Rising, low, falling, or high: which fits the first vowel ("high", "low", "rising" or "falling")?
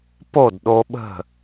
falling